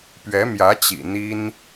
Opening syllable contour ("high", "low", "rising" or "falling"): rising